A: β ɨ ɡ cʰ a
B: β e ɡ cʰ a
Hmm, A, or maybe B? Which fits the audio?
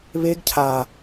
B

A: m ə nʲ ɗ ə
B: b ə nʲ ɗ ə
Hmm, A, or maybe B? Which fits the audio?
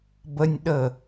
B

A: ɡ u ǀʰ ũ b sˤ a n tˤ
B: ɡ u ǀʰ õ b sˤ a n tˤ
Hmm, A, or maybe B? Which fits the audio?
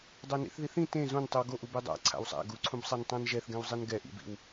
A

